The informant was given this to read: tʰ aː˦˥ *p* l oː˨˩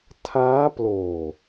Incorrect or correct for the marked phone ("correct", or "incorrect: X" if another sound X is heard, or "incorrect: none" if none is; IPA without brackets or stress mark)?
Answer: correct